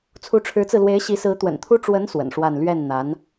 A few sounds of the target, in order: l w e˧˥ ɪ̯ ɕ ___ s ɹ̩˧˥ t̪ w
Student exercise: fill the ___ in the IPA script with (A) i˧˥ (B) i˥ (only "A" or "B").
A